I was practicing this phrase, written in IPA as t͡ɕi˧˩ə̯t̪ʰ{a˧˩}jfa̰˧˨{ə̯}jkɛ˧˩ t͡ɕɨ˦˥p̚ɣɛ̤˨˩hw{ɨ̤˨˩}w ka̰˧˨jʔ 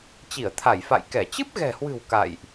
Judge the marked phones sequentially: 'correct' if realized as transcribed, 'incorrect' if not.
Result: correct, incorrect, correct

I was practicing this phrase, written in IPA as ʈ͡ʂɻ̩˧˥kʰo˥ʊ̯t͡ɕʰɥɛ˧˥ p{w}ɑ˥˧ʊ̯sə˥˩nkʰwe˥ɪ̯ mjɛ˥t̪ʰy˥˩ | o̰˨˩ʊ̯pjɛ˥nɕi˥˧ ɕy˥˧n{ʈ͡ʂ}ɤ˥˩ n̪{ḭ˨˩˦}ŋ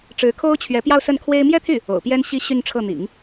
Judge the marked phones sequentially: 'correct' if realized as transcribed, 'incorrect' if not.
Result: incorrect, incorrect, correct

